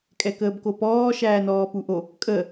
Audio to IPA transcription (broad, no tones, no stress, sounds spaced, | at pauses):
kʼ ɛ k əː b k o p ɔː ʃ æː n ɔː p u ʔ o | kʼ ə